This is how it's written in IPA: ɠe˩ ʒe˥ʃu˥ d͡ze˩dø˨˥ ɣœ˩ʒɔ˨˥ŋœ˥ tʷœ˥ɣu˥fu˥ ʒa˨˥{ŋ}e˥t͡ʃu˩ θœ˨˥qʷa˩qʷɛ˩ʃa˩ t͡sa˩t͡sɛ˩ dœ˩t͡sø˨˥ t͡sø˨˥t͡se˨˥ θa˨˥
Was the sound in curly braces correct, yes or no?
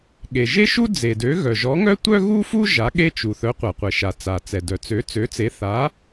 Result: no